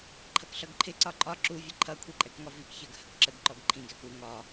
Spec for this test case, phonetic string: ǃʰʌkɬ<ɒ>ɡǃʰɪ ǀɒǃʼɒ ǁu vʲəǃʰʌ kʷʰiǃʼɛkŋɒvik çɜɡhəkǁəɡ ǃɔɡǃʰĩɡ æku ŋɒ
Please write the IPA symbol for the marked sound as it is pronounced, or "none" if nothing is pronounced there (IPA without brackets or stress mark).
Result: ʌ